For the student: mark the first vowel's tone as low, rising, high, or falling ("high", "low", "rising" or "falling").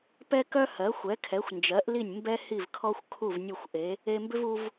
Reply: high